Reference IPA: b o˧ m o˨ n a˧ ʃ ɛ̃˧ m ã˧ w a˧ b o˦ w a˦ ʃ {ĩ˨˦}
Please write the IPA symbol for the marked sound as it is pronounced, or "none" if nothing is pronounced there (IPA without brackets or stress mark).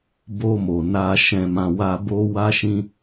ĩ˦